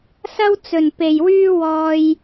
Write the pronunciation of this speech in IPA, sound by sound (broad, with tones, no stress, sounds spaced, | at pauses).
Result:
s ɐ˥ w t͡s ɵ˧ n p e˧ j w yː˥ w ɔː˥ j